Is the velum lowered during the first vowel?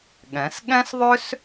yes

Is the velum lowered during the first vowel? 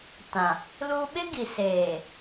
yes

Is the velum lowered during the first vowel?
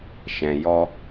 yes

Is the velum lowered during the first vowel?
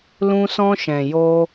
yes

